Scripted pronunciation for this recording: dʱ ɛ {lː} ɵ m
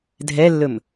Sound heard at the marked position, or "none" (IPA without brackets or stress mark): lː